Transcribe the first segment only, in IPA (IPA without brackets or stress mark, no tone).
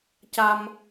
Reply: c